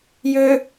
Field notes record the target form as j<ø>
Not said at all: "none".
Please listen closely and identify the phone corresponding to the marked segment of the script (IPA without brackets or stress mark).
ø